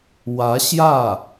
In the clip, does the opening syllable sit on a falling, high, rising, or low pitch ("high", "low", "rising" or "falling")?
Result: rising